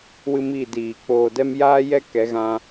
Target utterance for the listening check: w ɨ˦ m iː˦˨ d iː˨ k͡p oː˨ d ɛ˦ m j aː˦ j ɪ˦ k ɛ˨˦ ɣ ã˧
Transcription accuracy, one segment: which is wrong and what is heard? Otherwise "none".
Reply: ɪ˦ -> ɛ˦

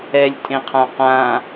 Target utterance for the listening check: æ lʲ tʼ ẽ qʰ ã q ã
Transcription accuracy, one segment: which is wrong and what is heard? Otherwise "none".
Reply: æ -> ɛ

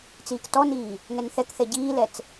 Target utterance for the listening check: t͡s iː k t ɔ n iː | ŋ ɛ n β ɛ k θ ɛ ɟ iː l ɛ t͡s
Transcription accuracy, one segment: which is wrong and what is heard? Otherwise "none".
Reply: β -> θ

